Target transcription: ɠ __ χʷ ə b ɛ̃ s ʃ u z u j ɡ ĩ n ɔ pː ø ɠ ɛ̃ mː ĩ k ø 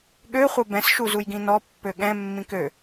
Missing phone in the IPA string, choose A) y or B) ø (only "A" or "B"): B